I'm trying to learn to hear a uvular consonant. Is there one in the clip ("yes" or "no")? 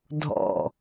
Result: no